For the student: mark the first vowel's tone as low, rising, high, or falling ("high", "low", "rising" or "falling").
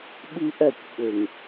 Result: high